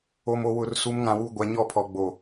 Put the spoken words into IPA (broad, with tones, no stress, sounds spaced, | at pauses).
o˨ m o˨ w ʊ˨ r s u˨˦ m ŋ ã˨ w u˨ ɡʷ a˨˦ ɲ ɔ˦˨ pʰ ɔ˨ ɡ͡b o˨